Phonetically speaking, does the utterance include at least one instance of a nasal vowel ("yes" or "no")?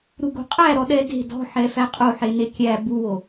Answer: no